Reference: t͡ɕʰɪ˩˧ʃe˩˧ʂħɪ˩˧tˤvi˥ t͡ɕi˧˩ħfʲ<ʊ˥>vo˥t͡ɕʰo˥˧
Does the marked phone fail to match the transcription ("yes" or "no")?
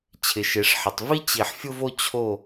no